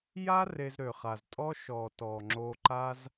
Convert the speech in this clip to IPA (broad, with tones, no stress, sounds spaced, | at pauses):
j a˦ r e˧ z ɾ ø˨ χ a˨ z tʼ ɔ˦ ʃ ɔ˨ t ɔ˨ ŋ͡ǁ o˧ ǃ a˦ z